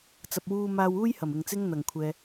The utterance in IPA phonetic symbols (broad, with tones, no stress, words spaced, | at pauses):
t͡sɐ˨p̚wuː˧maː˧wuː˥j hɐ˨˩m ɪ˨˩ŋ t͡sɪ˥ŋn̪ɐ˨˩ŋkʷʰɛː˨